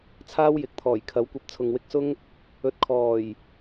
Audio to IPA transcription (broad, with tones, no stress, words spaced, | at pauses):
t͡sʰaː˥wjɪ˨˥k̚t̪ʰɔː˨˩j kʰɐ˨˥wkʷɐ˧p̚ t͡sʰʊ˨ŋwɪ˧k̚sʊ˥ŋ | ɵ˨t̚kʰɔː˨˩j